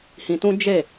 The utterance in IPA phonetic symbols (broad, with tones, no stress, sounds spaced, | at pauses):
h ĩ˧ t ũ˦ d͡ʒ e˦˨